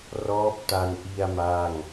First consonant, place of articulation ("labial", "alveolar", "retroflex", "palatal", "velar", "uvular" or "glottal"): alveolar